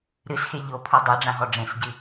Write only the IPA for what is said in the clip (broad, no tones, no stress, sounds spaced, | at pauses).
ɾ ɨ s x e ʎ o pʰ u dˤ a ɖ͡ʐ ã ɦ ɔ ɖ͡ʐ ẽ s ɟ ɨ